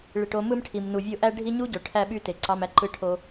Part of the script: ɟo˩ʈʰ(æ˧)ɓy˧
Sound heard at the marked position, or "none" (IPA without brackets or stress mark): æ˧